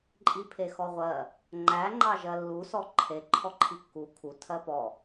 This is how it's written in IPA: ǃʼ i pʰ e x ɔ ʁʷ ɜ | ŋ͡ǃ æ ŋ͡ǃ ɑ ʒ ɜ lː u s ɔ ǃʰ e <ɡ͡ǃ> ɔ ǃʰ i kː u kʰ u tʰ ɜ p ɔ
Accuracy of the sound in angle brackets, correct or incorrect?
incorrect